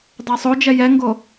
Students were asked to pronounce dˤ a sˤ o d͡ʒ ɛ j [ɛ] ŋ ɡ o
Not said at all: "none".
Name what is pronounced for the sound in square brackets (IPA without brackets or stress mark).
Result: ɛ